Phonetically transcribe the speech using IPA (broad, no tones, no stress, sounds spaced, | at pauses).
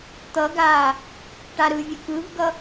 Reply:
t̪ ʌ ɡ aː | ʈ a ɾ ɯ vʲ ə k ɯ v ɡ ʌ